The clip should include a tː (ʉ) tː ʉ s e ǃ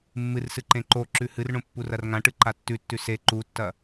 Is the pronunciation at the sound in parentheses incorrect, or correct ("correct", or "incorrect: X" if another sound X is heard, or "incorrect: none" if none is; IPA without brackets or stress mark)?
correct